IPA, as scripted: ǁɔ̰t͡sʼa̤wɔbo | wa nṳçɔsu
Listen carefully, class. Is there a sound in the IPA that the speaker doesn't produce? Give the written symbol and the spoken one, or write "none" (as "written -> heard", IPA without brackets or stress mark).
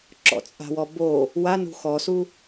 ç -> x